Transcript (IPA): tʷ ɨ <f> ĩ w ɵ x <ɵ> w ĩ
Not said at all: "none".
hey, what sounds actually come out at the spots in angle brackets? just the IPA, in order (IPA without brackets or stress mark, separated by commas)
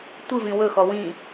v, ɔ